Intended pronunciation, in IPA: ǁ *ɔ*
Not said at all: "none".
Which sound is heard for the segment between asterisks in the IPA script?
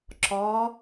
ɔ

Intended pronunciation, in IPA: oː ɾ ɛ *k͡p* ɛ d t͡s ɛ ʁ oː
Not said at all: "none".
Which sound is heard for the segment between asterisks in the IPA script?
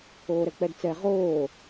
k͡p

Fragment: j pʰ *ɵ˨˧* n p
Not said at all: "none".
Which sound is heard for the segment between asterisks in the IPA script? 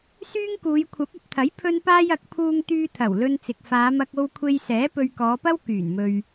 ɵ˥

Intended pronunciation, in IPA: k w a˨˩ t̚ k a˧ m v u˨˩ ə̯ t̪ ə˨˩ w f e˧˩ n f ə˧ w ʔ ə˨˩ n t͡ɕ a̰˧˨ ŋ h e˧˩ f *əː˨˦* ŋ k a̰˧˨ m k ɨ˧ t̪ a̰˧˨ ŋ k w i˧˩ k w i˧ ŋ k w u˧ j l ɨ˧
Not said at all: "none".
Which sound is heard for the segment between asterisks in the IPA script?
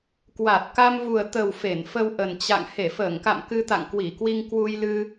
əː˧˩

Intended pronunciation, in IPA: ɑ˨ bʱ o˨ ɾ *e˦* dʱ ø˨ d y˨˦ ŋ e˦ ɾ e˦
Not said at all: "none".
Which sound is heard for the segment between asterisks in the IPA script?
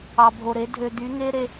e˨˦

